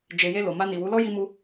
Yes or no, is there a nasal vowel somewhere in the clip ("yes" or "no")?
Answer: no